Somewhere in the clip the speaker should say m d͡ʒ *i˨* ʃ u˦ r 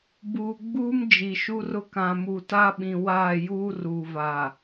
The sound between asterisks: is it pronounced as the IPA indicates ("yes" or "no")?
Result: yes